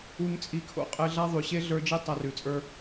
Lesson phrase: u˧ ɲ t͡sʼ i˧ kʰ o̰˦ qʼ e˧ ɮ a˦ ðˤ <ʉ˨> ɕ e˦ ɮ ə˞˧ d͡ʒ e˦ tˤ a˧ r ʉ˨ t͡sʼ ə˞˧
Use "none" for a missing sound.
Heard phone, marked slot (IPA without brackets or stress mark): ʉ˨